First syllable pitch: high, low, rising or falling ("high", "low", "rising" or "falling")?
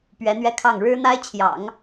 rising